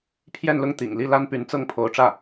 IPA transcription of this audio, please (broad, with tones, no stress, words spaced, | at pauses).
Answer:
pʰjɛ˥˧nlʊ˥˩ŋ t̪ḭ˨˩ŋli˥˩ la˥npy˧˥nt͡sɤ˥˩ŋpʰo˧˥ʊ̯ ʈ͡ʂä˥˩